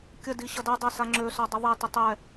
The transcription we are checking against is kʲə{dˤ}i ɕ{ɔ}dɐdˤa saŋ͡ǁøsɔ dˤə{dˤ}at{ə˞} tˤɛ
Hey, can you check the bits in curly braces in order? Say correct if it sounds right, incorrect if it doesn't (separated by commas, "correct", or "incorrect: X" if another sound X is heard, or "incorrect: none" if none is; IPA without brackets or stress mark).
incorrect: d, incorrect: ʌ, incorrect: ðˤ, incorrect: ə